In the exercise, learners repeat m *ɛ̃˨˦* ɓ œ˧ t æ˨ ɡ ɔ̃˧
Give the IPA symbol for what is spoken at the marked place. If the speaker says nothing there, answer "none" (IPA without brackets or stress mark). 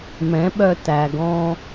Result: ɛ̃˨˦